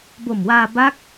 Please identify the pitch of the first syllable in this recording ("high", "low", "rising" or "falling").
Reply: low